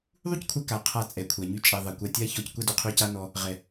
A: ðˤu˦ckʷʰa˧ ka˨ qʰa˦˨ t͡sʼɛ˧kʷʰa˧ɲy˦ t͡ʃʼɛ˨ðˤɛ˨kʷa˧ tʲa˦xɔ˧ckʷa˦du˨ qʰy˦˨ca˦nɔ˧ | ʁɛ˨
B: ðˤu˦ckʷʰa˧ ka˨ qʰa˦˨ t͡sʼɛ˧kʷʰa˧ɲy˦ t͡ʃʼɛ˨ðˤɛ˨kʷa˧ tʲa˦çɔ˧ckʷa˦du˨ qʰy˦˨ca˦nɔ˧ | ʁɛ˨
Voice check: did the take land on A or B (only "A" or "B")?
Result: B